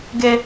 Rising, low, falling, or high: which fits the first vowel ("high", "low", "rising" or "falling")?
high